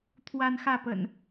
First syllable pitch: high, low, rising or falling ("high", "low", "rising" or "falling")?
high